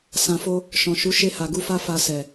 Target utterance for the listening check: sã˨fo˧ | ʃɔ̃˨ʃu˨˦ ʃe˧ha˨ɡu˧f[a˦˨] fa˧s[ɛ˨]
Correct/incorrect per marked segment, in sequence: incorrect: a˦, correct

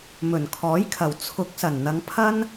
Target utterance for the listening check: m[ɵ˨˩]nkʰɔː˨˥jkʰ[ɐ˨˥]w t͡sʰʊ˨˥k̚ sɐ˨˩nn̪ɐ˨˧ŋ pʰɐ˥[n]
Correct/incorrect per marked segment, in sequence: correct, incorrect: ɐ˨˩, correct

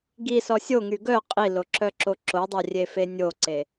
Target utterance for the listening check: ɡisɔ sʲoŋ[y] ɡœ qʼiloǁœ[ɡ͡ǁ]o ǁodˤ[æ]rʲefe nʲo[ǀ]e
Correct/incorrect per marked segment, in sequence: correct, incorrect: ǁ, incorrect: œ, correct

